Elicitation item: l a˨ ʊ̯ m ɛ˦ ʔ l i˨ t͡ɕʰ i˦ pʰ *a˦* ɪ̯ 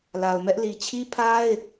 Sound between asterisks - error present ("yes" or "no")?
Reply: no